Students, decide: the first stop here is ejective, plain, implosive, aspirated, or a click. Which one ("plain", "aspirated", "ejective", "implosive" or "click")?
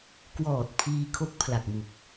plain